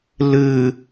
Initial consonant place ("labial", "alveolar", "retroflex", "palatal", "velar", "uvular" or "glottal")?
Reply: alveolar